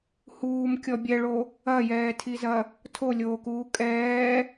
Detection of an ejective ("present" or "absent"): present